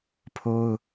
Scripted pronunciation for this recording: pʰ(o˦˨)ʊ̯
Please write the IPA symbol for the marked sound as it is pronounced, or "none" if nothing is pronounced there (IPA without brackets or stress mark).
o˦